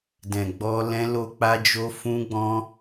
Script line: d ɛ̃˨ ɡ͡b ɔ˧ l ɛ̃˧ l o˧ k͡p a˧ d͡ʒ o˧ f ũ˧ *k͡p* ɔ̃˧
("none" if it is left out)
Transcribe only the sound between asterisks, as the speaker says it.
ɡ͡b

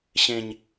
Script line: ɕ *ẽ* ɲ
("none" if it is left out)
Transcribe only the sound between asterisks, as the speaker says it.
ẽ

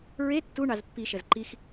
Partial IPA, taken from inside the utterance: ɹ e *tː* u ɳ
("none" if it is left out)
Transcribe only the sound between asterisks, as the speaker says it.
tː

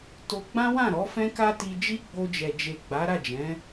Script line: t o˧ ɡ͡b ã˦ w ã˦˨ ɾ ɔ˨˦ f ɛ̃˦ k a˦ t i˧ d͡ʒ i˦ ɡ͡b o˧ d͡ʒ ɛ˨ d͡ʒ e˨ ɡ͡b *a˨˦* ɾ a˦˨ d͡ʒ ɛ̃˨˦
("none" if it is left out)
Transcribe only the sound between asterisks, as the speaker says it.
a˨˦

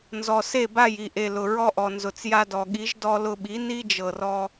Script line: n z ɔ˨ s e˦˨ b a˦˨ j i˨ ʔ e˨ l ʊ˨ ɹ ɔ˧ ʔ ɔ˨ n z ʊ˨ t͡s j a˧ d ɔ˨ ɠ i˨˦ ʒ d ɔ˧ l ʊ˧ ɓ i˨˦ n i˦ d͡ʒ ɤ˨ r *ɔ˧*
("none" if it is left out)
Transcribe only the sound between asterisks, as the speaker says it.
ɔ˧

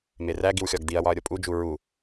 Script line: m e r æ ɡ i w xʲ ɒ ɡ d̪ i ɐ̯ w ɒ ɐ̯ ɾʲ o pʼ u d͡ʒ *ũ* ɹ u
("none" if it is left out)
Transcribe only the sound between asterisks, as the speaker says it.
u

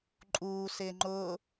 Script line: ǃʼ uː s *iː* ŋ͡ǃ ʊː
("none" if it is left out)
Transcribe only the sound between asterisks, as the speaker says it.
ɪː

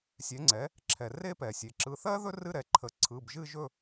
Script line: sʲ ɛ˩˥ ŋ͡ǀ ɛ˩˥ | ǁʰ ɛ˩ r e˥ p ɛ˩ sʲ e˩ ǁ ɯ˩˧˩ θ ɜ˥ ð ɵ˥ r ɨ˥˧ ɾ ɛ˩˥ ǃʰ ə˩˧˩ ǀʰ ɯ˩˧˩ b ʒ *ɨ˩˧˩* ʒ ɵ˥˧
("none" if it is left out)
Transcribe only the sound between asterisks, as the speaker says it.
ɨ˥˧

